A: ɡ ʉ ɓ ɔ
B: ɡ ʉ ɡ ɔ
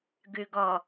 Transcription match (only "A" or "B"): B